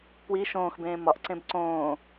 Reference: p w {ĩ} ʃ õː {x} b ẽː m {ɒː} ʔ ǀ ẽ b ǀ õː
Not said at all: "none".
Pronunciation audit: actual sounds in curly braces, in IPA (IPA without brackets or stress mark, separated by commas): i, x, ɒ